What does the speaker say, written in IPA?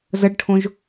z ə ɖ ʈʰ õ ʒ

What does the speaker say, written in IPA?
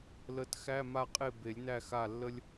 l ə˨˦ t x æ˧˥˧ m a˦˨ qʼ e˦˨ b e˨˩˦ lʲ n æ˦˨ x a˦˨ lː ə˥ lʲ

